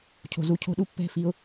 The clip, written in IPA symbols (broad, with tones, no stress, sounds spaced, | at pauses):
cʰ o̤˨ z u˧ cʰ o̤˦ ɗ u˦ pː ɛ̤˦˨ f i˧ ʊ̯